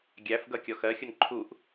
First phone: ɡʲ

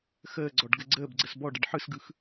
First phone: x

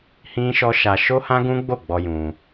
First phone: h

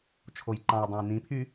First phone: t͡ʃʰ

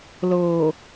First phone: l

